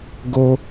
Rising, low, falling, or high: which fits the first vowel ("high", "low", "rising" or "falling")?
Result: high